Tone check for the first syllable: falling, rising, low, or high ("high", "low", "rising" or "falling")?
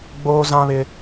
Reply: high